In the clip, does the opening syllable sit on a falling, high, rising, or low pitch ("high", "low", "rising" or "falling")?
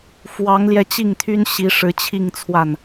rising